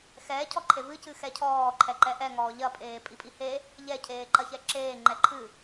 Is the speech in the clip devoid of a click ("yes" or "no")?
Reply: no